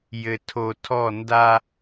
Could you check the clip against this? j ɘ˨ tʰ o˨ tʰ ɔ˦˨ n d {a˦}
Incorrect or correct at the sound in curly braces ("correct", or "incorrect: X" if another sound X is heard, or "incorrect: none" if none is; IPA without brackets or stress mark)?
correct